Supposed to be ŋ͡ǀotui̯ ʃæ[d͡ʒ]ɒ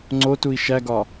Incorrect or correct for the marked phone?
incorrect: ɡ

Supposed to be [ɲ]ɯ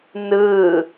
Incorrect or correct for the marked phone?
incorrect: n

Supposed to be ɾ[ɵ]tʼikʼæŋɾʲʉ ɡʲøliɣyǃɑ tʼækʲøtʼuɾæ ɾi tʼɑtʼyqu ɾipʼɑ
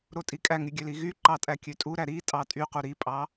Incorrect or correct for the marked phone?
incorrect: o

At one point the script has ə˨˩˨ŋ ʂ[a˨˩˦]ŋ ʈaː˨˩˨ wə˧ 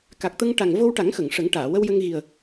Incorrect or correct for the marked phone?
incorrect: ə˨˩˦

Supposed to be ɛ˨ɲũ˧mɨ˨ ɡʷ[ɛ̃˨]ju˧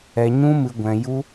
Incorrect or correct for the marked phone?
correct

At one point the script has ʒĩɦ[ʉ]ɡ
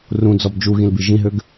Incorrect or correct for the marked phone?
incorrect: ø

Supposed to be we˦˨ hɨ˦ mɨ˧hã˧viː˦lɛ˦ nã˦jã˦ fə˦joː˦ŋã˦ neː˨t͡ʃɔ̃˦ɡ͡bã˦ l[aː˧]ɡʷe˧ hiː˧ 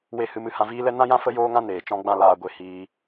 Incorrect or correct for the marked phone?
correct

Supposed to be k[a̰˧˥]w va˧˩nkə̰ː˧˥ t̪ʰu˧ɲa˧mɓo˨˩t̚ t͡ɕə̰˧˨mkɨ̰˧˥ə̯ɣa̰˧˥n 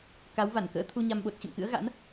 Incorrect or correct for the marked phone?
incorrect: a˨˦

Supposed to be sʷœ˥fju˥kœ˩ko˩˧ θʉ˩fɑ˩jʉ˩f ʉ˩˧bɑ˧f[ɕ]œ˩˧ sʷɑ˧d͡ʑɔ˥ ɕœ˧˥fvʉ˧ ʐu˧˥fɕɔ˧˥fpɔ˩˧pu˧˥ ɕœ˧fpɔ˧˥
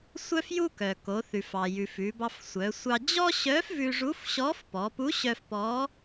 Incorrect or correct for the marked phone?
incorrect: sʷ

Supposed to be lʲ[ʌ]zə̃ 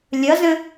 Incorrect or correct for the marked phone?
correct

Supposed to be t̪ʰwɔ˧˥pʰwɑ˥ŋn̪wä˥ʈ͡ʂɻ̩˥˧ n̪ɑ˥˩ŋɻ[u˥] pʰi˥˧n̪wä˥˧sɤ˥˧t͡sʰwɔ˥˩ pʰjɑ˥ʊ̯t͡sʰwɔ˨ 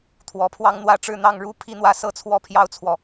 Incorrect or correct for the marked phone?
correct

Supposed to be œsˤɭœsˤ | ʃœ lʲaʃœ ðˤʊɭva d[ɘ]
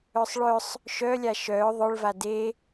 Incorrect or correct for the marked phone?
incorrect: e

